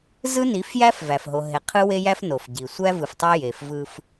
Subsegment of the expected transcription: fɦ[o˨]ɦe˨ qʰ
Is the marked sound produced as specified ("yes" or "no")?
yes